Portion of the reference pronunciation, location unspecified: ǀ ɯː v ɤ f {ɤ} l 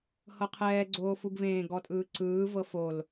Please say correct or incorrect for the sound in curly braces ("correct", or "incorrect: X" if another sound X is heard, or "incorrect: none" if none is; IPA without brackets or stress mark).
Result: incorrect: o